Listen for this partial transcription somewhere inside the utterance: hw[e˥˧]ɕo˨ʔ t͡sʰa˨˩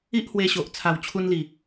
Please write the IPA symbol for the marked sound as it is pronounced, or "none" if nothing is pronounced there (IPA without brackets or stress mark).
e˧